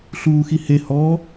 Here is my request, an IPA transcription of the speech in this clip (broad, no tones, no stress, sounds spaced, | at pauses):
ɬ uː x i h e h ɔ